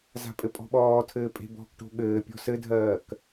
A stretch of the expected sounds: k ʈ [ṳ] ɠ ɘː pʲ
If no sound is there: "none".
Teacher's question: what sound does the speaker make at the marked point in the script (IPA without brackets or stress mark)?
o̤